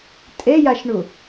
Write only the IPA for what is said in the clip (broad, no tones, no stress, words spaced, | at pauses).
tʼejaʃɳu